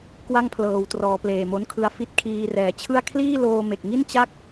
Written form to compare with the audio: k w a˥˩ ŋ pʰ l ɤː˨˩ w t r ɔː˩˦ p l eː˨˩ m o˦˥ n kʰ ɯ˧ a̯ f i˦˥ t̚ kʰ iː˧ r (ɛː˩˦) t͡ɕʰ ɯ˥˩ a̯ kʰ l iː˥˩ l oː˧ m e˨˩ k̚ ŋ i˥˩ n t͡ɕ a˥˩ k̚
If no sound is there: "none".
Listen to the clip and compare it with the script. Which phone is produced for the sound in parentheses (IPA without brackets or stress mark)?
ɛː˩˦